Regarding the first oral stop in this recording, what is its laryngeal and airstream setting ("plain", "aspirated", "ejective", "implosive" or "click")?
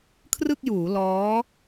aspirated